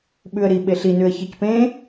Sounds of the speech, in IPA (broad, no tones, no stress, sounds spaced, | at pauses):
ɓ ʉ ə̯ ɾ i ɓ e ɬ i n ʉ ə̯ ç ɤ c p ẽ